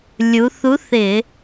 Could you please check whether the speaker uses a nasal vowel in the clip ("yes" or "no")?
no